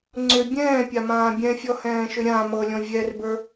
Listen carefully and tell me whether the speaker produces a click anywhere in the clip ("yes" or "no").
yes